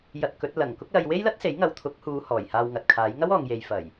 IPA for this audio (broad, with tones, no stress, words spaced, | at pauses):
jɐ˧t̚kɵ˨˥t̚ lɐ˨˩ŋ kʊ˥k̚lɐ˧j we˥jlɐ˥t̚se˨˥jŋɐ˨w t̪ʰʊ˨˥k̚huː˨˧ hɔː˨˩jhaː˧wŋɐ˨t̚kʰaː˨˥j ŋɐ˥wɔː˨ŋ je˨jfɐ˨˩j